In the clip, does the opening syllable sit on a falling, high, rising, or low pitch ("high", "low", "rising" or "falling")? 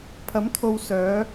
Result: rising